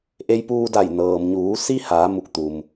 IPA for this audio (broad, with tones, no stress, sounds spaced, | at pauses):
ʔ e˧ j p uː˧ d a˧˩ j n ɤː˩ m ɲ uː˩˧ s i˧ h aː˩˧ m u˧˩ k̚ t̪ u˩ m